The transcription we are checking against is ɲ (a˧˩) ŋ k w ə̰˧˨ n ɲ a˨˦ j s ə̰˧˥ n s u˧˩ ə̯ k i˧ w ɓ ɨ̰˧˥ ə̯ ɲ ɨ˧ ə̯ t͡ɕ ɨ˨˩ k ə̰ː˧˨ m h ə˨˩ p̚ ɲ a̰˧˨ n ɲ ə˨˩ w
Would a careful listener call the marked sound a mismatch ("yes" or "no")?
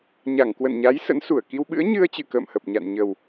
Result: no